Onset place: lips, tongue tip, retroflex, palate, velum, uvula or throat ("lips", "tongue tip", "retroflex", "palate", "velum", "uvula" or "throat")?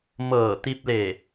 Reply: lips